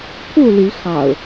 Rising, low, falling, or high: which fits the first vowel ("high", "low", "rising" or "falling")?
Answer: falling